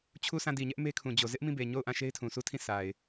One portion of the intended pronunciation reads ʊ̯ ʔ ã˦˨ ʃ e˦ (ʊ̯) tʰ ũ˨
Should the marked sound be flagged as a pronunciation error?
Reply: yes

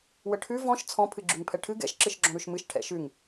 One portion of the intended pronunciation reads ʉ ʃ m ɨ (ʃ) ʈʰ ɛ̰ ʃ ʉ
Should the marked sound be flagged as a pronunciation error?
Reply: no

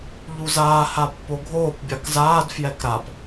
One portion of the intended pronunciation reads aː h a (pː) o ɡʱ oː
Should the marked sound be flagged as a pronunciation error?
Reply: no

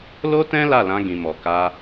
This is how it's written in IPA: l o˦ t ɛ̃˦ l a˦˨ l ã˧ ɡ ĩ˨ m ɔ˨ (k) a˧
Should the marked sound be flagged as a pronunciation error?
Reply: no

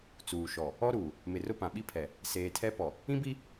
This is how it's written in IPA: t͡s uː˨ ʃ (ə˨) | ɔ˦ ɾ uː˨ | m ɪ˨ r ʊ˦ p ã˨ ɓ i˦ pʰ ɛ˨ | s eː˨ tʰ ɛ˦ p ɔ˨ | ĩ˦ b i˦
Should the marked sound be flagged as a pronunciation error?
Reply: yes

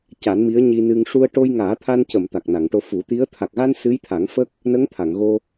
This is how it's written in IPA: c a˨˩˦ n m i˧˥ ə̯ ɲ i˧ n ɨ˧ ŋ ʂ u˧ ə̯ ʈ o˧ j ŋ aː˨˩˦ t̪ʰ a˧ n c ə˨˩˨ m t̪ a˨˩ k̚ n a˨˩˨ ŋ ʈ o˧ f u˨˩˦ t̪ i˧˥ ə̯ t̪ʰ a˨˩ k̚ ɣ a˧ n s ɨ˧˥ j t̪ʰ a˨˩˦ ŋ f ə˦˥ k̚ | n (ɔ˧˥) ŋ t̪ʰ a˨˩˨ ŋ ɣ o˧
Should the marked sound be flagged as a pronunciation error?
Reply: yes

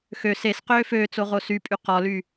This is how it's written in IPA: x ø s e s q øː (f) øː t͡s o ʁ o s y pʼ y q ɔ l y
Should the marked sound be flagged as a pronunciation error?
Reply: no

